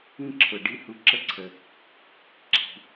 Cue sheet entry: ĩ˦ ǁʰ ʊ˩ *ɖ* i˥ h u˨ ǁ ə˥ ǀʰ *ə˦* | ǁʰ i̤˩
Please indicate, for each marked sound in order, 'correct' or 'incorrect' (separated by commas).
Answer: correct, incorrect